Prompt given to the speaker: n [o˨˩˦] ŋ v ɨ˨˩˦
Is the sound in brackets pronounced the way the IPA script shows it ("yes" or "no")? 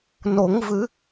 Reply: yes